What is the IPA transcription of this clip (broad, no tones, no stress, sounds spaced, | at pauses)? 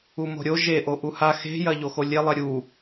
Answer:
u m o̤ ɾʲ o ʒ e ʔ o ʔ u h a x e̤ j ɐ ʎ o x o lʲ e lˠ e ɾʲ u